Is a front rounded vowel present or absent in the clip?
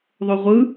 present